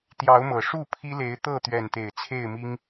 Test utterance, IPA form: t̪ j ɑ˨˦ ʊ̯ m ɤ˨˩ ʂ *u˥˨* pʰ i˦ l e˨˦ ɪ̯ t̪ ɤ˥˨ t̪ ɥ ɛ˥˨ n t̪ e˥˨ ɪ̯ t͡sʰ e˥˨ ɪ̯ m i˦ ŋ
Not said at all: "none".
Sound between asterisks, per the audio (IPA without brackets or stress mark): u˥˨